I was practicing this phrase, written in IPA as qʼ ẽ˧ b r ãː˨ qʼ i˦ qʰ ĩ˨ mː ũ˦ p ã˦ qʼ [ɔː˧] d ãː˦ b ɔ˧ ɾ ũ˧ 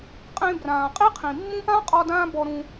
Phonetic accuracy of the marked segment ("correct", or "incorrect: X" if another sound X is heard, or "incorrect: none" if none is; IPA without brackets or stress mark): incorrect: ɔ˧